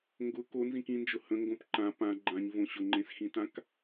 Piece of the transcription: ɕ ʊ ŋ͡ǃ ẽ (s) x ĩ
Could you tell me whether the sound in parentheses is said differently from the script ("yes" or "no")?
no